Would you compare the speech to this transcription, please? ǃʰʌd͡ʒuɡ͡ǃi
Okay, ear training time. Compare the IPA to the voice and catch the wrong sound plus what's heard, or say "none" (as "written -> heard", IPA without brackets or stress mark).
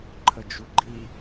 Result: ʌ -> ə